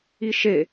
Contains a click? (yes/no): no